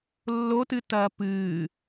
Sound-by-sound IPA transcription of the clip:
lː o t ɨ t ɐː p ɨː

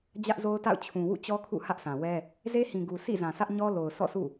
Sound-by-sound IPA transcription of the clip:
d͡ʑ ä˦ ʔ z o˦ ʊ̯ t a̰˦˨ ʊ̯ t͡ɕʰ ũ˨ w ṵ˦˨ t͡ɕ ɔ˦ kʰ ṵ˦˨ h ä˦ ʔ sʰ ã˨ w ɛ˦ | z e˦ h ĩ˨ ɡ u˨ sʰ ḭ˦˨ z ã˨ sʰ ä˦ ʔ ɲ ɔ˦ l o˨ ʊ̯ s ɔ̰˦˨ sʰ ṵ˦˨

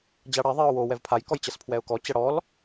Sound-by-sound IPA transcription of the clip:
d͡ʑ a ɽ ɛ ðˤ i ʊ̯ w o w ɛ v pʰ a j k ɔ j t͡ɕ ɐ s pʰ w ɛ ʊ̯ k ɔ t͡ɕ ɐ ɽ ɔ l

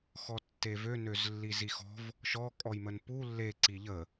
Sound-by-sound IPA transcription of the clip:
x ɔ tː e v ø n ø z lː i z i x ɔ̤ v | ʃ ɔ kʼ ɔ j m ə n p u lː e ǀ i ʎ ə

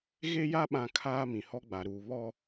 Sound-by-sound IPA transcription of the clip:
ɣ e˦ j a˦ ɓ ã˦ kʰ aː˦ m ĩ˨ h ɔ˦ ɡ͡b a˨ ɾ uː˨ β ɔ˦

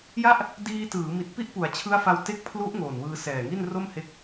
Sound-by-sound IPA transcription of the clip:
j a˥˩ ʔ | d iː˧ t ɯː˩˦ m i˨˩ t̚ p i˥˩ ʔ p u˩˦ a̯ t͡ɕʰ ɯ˦˥ a̯ f a˧ w t e˦˥ k̚ pʰ l u˦˥ ʔ ŋ oː˨˩ n w ɯː˧ s ɛː˨˩ ŋ i˥˩ n r o˥˩ m h e˦˥ k̚

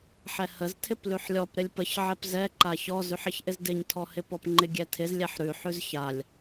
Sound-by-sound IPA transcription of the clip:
ħ ɛ h ə z tʰ ɪ p l ʉ ħ lʲ ɔ p ɾ ɪ lʲ p ə ç ʕ ɛ p z ɛ ǃ a ç ɔ z ʉ ħ ɪ ç ʔ ɪ z d ɪ ɲ tʰ ɔ h ɪ p ɔ p ŋ͡ǃ ɪ ɡʲ ɛ tʰ ɪ z lʲ ɛ ħ ɾ ʉ ħ ʉ z ç a lʲ

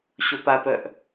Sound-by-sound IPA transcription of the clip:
ɕ o p a p œ ʔ

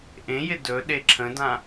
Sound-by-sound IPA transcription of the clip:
ʔ ẽ j ɪ d ɵ ɗ e ǁʰ ə̃ d ã

